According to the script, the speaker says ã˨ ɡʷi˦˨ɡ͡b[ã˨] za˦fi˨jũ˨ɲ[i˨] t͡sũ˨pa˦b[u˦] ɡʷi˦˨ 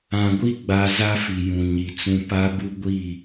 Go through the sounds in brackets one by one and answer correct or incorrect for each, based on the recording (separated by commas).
incorrect, correct, correct